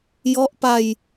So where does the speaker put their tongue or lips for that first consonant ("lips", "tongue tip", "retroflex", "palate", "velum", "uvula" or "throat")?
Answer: palate